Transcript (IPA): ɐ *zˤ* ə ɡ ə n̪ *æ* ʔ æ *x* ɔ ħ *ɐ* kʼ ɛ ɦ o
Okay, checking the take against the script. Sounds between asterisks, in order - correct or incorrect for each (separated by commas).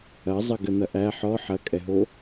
correct, incorrect, incorrect, correct